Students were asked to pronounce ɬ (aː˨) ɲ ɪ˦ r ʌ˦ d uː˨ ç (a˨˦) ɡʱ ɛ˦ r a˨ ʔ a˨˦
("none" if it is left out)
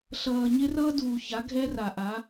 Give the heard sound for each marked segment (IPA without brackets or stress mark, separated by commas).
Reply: ʌː˨, a˨˦